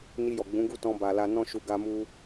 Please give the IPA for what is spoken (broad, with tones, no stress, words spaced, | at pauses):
ni˧jɔ˨ ɡ͡bũ˨˦ɡu˦˨tɔ̃˧ ba˨la˧ nɔ̃˦ʃu˧ ɡa˧mu˧